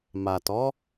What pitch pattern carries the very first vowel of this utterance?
low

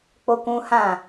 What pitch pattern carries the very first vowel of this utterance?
high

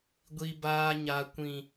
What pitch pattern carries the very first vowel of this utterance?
high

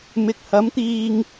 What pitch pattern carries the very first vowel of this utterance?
low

